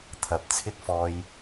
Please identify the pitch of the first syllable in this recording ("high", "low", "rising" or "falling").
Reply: rising